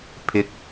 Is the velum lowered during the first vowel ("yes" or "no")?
no